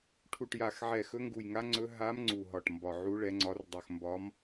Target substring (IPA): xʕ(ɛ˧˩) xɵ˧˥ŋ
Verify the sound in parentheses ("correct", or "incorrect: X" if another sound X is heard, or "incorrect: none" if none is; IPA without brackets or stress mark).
correct